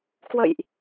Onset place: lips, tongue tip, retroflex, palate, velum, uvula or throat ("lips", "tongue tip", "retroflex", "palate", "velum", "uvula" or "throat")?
velum